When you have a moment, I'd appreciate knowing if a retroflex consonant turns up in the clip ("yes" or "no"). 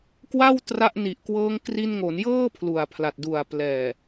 no